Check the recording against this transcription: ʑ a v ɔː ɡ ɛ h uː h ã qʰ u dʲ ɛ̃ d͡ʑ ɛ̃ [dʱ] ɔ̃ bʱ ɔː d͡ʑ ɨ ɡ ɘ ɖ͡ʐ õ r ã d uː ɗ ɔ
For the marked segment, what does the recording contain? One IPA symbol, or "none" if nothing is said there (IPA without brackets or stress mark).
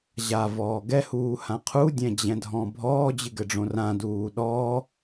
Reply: dʱ